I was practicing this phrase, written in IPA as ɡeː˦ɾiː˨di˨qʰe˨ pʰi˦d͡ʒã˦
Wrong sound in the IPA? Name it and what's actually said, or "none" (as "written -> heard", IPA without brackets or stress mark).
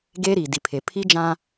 qʰ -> pʰ